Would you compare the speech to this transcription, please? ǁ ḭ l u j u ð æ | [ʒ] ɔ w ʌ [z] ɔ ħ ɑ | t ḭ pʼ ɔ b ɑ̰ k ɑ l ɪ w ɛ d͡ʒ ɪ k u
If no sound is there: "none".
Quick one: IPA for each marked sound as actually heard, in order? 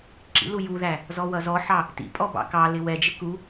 z, z

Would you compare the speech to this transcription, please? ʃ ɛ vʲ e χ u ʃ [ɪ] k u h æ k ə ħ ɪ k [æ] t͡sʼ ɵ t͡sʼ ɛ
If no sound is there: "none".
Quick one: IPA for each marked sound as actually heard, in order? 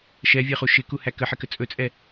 ɪ, ə

